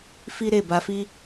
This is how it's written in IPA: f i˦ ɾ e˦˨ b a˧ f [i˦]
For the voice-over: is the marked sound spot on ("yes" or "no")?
yes